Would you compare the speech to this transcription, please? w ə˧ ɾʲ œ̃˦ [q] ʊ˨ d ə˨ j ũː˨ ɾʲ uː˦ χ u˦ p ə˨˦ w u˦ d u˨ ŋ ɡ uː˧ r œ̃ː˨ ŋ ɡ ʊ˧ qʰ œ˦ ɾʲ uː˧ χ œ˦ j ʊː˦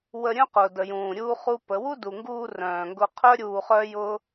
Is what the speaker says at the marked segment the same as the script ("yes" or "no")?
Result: yes